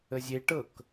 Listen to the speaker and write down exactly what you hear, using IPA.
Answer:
əzʲe ʈɤk

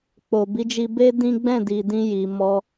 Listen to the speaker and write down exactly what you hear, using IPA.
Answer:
k͡po˨bi˨˦d͡ʒi˧be˦ dĩ˦ ɡ͡bɛ̃˦˨di˨dĩ˧ ji˧mɔ˦

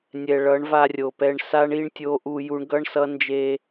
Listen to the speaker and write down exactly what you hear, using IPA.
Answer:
nʲɛ˨ɭʌ˨˦ɳva˧ rʲo˨pɛ˧ɳ sa˦ɳ i˦ɳtʲo˦ʔu˧ ju˧ɳɡʌ˦ɳsʌ˦ nd͡ʒe˧

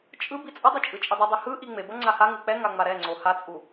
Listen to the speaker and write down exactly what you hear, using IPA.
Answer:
t͡ʃʼɯ bit͡sʼʌdˤɯ t͡ʃʼɯt͡ʃʼidˤɯdˤi hɯʔi ŋ͡mebʌ ŋ͡ǀahaŋɯ k͡pɛŋa ŋ͡maɾɛŋ͡ǀo hat͡sʼu

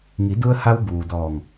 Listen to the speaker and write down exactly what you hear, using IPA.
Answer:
ŋi˩˧du˧ə̯ha˧w buː˩dɔː˧˩ŋ

